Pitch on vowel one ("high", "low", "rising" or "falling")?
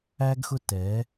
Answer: high